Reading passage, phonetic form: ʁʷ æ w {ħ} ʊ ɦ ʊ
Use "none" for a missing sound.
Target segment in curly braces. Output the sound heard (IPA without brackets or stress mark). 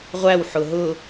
ħ